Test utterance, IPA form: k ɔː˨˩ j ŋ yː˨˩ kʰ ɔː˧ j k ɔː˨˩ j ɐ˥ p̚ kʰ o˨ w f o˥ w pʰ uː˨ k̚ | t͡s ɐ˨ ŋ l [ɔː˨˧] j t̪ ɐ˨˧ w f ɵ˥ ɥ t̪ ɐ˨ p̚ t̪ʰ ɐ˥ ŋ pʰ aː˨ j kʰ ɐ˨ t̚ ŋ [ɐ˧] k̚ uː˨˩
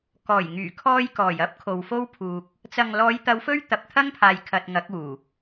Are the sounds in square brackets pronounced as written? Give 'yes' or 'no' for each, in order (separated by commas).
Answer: yes, no